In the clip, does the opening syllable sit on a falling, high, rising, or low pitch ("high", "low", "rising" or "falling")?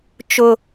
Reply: high